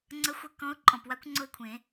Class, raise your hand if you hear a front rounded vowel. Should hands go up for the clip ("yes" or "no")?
no